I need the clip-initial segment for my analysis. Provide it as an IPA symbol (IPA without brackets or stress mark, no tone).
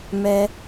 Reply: m